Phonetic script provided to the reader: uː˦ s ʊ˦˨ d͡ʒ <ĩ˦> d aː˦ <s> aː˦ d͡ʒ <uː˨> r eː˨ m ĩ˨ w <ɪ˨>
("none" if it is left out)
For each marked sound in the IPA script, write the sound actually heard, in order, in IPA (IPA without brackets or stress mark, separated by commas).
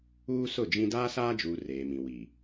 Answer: ĩ˦, s, uː˨, i˨